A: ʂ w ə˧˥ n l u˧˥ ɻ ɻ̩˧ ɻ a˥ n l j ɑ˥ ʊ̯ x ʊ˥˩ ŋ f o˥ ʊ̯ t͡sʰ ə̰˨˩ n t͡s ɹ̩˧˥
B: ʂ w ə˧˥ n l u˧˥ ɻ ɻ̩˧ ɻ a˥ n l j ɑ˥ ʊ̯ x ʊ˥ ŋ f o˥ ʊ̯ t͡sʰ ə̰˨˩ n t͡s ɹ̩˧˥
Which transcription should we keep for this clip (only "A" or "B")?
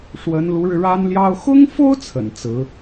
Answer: B